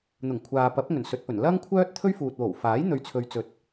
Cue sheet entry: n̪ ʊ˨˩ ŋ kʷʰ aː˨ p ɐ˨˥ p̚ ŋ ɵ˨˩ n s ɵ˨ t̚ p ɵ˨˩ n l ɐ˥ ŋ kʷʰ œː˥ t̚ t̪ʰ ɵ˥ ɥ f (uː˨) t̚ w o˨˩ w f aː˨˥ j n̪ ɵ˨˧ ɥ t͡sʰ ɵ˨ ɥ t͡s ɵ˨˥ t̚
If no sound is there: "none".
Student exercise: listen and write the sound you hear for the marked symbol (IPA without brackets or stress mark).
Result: uː˨